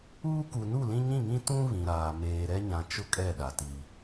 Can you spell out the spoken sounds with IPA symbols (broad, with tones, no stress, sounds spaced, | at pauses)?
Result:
uː˦ k u˨ n u˦˨ l ĩ˦ ɲ ĩ˦˨ ŋ ĩ˦ t ũ˦ β ĩ˨ ɾ aː˨ m eː˨ ɾ ɛ˦ ɲ ã˨ t͡ʃ ʊ˦ kʼ ɛ˦˨ ɗ a˨ t i˨